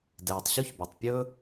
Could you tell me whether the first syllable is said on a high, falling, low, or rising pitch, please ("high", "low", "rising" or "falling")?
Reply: low